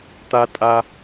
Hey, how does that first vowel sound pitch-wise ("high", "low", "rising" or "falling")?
high